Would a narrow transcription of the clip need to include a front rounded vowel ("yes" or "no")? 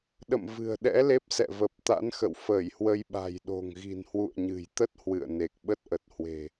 no